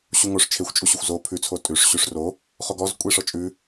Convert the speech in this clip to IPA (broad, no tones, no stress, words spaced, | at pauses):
ɕuŋoʂ t͡ʃʰexʷt͡ʃʼuɕuxʷ zo pʰʉt͡sʰo tʼʉʂ ɕʉʂro | χoɡɔz kʷʼeʂɔt͡ʃʼʉ